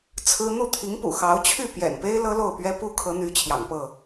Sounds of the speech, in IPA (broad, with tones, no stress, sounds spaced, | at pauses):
t͡sʰ ɹ̩˦ n̪ u˥˨ t̪ʰ i˨˦ ŋ p ṵ˨˩ x ɑ˨˦ ʊ̯ t͡ɕʰ y˥˨ p j ɛ̰˨˩ n p e˦ ɪ̯ l ɤ˦ l o˥˨ ʊ̯ p ɥ ɛ˦ p u˦ kʰ ɤ˨˦ n̪ y˨˦ t͡ɕʰ j ɑ̰˨˩ ŋ p ɤ˥˨